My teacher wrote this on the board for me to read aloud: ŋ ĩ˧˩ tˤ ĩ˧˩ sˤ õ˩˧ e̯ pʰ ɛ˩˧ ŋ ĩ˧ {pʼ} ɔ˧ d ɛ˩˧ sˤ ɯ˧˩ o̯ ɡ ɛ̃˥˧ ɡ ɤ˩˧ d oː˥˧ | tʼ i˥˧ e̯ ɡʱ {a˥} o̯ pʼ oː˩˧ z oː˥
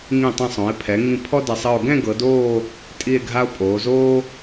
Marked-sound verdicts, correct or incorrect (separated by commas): incorrect, correct